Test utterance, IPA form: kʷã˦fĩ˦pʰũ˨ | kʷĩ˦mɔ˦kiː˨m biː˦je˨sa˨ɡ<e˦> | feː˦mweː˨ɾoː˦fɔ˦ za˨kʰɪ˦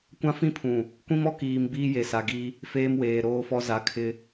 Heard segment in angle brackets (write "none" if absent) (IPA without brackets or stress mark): i˦